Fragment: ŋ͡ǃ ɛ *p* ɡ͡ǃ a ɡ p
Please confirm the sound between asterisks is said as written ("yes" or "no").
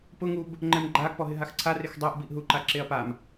no